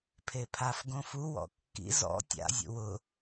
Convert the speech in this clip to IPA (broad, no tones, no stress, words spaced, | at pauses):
pʰepʰafɡõ fuwɔ̰ kːḭ zɔ̰ tʲa̰zʲṵ wʊ